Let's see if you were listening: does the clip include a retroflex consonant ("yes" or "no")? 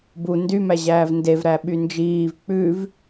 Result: no